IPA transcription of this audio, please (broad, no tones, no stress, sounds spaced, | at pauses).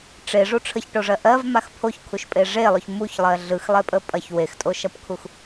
ʈ͡ʂ e ʐ u ʈ͡ʂʰ ə ç ʈ o ʐ ɜ ʔ ɜ v m a x pʰ o ç kʰ u ʃ pʼ e ʐ e lˠ o ç m u ç lˠ ɜ ɮ ɯ x lˠ e pʼ ə pʼ ɐ ç w e x tʼ o ʃ ɐ p kʰ u x